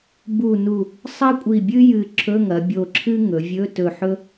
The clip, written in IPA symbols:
b u˧˩ n u˧˩ | sˤ ɐ˥ kʷʼ i˧˩ bʲ ɨ˥ j ɨ˧˩ ǁʰ ɵ˧˥˧ ŋ ɐ˩˧ bʲ o˧˩ ǁʰ ɨ˥ ŋ ɵ˩˧ vʲ ɵ˧˥˧ t ɵ˧˩ ħ ɵ˥

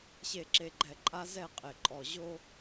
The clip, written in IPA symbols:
ɕ e˨ ǁ e˨ ɡ͡ǃ ɛ˨ ǃʼ a˦ z ɛ˦˨ qʼ e˨ ǃʼ ɔ˨ ʑ o˦

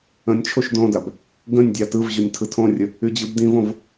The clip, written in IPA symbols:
ə̃ nʲ t͡ʃʰ o ʃ d õ d a b | ɡ ə̃ nʲ dʲ ɑ t ɯ v ʑ o nʲ tʰ ɯ tʰ õ rʲ ə | y d͡ʑ ɯ b d ĩ v õ v

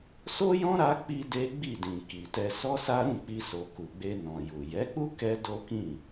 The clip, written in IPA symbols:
s o˦ j ɔ̃˦ ɾ a˧ k͡p i˦ d e˦ ɡ͡b i˦˨ d ĩ˨ k i˨ t ɛ˧ s ɔ˦ s a˦ ɾ ũ˦˨ k͡p i˧ s o˨ k u˨ ɡ͡b e˧ n ɔ̃˨ j u˨ j ɛ˨˦ k͡p u˦ k ɛ˦ d o˦ k ĩ˦˨

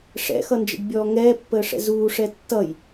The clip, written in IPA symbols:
ʂ ɛ̰ x ʌ n d͡ʒ ə̰ ɖ bʲ ɔː ŋ ɛː pː əː ʂ ɛ̰ z uː ʂ ɛ tː ʌ j

